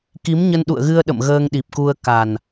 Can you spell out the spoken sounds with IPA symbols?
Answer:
k i˨˦ m ɲ ə˧ n ɗ ṵ˧˨ ə̯ ɣ ɨ˧ ə̯ ɗ ə̰˧˨ m ɣ əː˧ ŋ ɗ i˨˩ p̚ k u˧ ə̯ k a˨˩ n

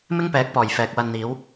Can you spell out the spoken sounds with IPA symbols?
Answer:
m ɪ˥ ŋ p ɛː˨˥ k̚ p ɔː˨˩ j f ɛː˨ k̚ w ɐ˧ n n̪ iː˨˥ w

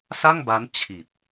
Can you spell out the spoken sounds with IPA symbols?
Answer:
s a˥˩ ŋ b a˦˥ n t͡ɕʰ i˨˩ t̚

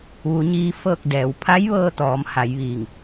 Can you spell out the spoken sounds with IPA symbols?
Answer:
ʋ u˩˧ ɲ iː˧ f ɤː˥˨ k̚ d ɛː˩˧ w pʰ a˧˥ j ʋ ɤː˧ t̪ ɔː˩˧ m h a˩˧ j ʋ iː˧˩ ŋ

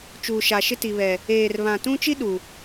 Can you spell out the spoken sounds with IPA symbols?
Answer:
t͡ʃ uː˨ ʃ a˨ ʃ ɪ˦ t i˨ β ɛ˨ | eː˨ r β ã˨ t ũ˦ t͡ʃ i˦ ɗ u˨

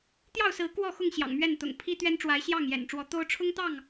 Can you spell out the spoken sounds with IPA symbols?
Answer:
t̪ j ɑ˥˨ ʊ̯ s ɹ̩˨˦ k w ɔ˥˨ x ʊ˥˨ ŋ ɕ j ɑ̰˨˩ ŋ m ɥ ɛ˥˨ n t̪ ʊ̰˨˩ ŋ pʰ i˦ t̪ ɥ ɛ˦ n ʈ͡ʂ w a˨˦ ɪ̯ ɕ j ɑ˥˨ ŋ j ɛ̰˨˩ n ʈ͡ʂ w ɔ˨˦ t̪ o˦ ʊ̯ ʈ͡ʂʰ ʊ˦ ŋ t̪ ɑ˥˨ ŋ

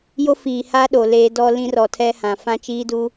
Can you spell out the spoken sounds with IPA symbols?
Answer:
j o˦ f iː˨ h a˦ ɗ o˨ l eː˦ d ɔ˦ l ĩ˦ r ɔ˨ tʰ ɛ˦ h ã˨ f ã˦ t͡ʃ iː˦ d u˦

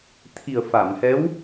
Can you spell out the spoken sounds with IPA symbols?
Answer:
t̪ʰ i˨˩ ə̯ f a˨˩˨ m h ɛ˧˥ w

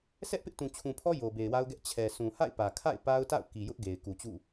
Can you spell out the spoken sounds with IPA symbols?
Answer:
sʰ ɛ˦ ʔ p ɪ˦ ʔ t ũ˨ t͡ɕʰ ũ˨ pʰ ɔ˦ j o˨ b e˨ ɪ̯ w a˦ ʊ̯ ɡ ɛ˦ ʔ t͡ɕʰ ɛ˨ sʰ ũ˨ h a̰˦˨ ɪ̯ p ä˨ kʰ a̰˦˨ ɪ̯ p a˦ ʊ̯ t a̰˦˨ ʊ̯ k i˨ j ʊ˦ ʔ ɡ e˨ ɪ̯ k u˨ t͡ɕ ṵ˦˨

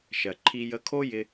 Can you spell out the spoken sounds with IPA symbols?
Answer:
ʃ ɜ˩ ǃʰ i˧ j ə˧˥ kʰ o˥ j ɪ˧

